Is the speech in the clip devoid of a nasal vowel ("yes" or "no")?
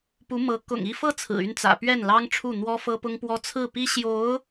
yes